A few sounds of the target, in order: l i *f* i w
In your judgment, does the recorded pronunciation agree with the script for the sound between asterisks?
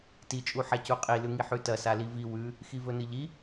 no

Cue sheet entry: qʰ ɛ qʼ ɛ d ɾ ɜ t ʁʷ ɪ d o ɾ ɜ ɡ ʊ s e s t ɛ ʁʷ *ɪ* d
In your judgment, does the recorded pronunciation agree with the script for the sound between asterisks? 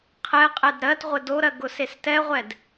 no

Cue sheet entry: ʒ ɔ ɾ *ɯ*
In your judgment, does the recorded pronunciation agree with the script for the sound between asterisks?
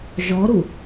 no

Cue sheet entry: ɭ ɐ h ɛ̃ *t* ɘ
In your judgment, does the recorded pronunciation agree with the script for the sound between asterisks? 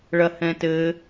yes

